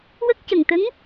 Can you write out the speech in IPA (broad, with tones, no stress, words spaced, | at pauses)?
wə˦˥k̚cə˨˩ŋt̪ə˧˥ŋ